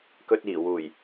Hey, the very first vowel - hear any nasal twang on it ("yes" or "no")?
no